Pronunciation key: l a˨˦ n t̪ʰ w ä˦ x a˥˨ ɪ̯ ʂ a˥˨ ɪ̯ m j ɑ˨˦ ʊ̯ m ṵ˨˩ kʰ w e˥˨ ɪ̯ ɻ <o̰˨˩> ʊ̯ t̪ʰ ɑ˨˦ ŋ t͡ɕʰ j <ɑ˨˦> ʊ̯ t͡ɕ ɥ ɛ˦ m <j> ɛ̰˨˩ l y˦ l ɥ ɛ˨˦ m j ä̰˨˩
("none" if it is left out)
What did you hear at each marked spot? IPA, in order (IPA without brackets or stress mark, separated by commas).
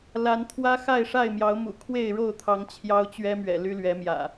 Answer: o˥˨, ɑ˦, ɥ